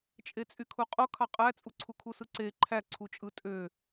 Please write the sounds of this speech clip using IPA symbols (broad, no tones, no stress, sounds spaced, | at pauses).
t͡ʃʼ e t͡sʼ y kʰ u qʼ o kʰ ɑ qʼ æ t͡sʼ u ǀʰ u kʰ u s ɯ ǀ e ǃʰ æ ǀʰ u t͡ʃʼ ɯ tʼ ø